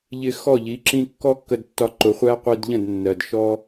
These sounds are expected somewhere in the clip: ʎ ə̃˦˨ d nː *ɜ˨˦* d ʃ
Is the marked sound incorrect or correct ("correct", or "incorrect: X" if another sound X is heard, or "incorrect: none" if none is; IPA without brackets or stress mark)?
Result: incorrect: ɜ˨